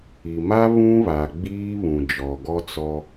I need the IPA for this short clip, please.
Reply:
i˨ m a˦ β ũ˦ β a˨ ɡ͡b iː˦ β ũ˨ d͡ʒ ɔ˨ ɡ ɔ˦ t͡s ɔ˦

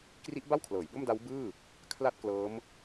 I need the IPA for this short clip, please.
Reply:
k r i˦˥ ʔ b a˥˩ w kʰ l ɤː˩˦ j b o˥˩ m d a˦˥ w b ɯː˥˩ | kʰ l a˥˩ t̚ k l ɤː˦˥ m

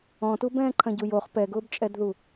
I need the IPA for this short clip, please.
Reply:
ɔ̃ t u b ɛ̃ː ǃʰ ɐ̃ ɟ u j o χ p ɛ ɡ ʊː b t͡ʃʼ ɛ d ð u

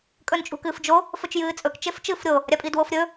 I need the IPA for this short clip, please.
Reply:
kʼ ɵ n t͡ʃʼ ṳ k ɨː f d͡ʒ o | f ɵ t͡ʃ j ɨː t͡sʼ ɵ k t͡ʃ e f t͡ʃ ɨː f ɾʲ o | ɾʲ a pʼ i d w o f ɾʲ ɵ

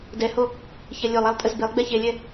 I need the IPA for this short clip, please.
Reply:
d ɛ h o | ç ɛ lʲ o lˠ a lˠ tʼ ə z b e lˠ ɡ͡b ɛ ç e lʲ ɛ

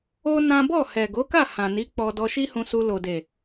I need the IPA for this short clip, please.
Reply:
o˦ n ã˦ b ɔ˦˨ h ɛ˨ ɡ o˨˦ k a˦˨ h ã˨ n i˨˦ k͡p ɔ˧ d ɔ˧ ʃ i˦ h ũ˧ s u˧ l o˨ d e˨

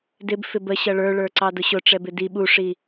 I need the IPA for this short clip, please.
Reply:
d ɪ b f ɪ b ə ɕ ʌ ɭ ə˞ ɭ ə˞ ǀ ɑ d ʊ ɕ ʊ ʈ͡ʂ ɛ b ɪ d i ɓ u ʂ i

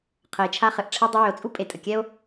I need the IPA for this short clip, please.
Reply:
qʰ ə˨ e̯ t͡ʃʰ a˥ χ ɘ˨ ʔ ʈ͡ʂʰ ɛ˦ dˤ ʏ˦ w ʏ˨ o̯ t͡sʼ u˥ pʼ e˨ tʼ ə˩ kʲ ɛ˥ o̯

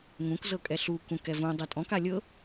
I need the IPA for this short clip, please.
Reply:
ŋ ũ k z ɤ kʼ ɛ ɬ u k ũ k ɛ v ũ dˤ ɛ tʼ ɔ̃ k a lʲ ɤ

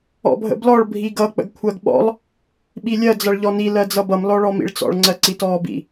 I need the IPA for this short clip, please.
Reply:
ɔ̰ bʱ ə̰ b l ɔ ɭ bʱ i ɡ ʌ k͡p ə̰ ɡ kʷʰ ɜ ɡ ɓ ɔ̰ lˠ | ɓ i lʲ ɜ d͡z ʌ ɭ ʎ ɔ n i l ɜ d͡z ʌ b ʌ m l ɔ ɭ ɔ m ḭ ɭ t͡s ɔ̰ ɭ ŋ͡ǀ ɜ ǀ i t ɔː b ḭ

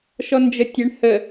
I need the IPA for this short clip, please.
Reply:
ʃ ɔ n d͡ʒ ə tʲ ɛ ɳ h ə

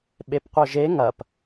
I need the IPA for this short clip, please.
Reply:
ɓ e p qʷ œ ʒ e ŋ ɐ p

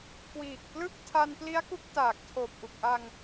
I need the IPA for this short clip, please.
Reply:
k w iː˨˩ k̚ p l ɯ˥˩ k̚ tʰ a˧ n p l i˦˥ a̯ k u˦˥ k̚ t aː˨˩ k̚ tʰ oː˨˩ p̚ ʔ u˨˩ k̚ ʔ a˧ ŋ

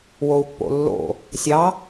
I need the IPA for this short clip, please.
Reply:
w o u̯ pː o̰ lː o̰ | sʲ ɑ

